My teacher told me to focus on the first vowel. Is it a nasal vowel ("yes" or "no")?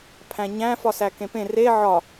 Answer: yes